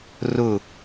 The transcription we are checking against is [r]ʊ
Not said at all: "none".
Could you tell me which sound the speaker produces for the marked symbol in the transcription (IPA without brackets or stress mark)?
r